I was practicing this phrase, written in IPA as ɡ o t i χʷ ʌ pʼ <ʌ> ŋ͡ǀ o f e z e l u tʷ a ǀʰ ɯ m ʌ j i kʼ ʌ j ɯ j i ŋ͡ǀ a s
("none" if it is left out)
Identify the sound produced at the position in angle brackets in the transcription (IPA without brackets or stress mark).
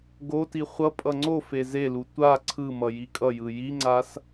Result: ʌ